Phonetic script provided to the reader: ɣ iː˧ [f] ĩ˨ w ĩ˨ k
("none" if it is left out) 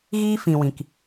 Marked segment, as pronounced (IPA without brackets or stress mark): f